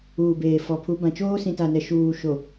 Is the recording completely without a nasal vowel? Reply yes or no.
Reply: no